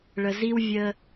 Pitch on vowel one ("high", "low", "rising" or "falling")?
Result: low